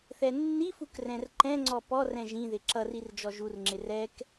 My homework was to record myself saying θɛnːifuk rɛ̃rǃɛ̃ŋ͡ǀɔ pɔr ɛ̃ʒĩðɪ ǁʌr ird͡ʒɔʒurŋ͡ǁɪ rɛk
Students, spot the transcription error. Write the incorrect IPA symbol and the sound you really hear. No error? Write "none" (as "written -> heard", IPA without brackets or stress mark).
none